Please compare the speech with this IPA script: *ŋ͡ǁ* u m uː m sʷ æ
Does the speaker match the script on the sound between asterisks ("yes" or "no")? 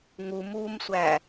no